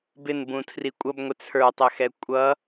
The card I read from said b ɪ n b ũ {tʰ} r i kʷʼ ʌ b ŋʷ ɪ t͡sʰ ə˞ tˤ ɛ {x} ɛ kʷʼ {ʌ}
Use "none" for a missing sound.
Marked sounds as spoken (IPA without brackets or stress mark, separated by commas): tʰ, x, ʌ